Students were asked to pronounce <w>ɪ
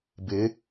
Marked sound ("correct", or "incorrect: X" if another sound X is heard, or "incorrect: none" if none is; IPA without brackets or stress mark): incorrect: b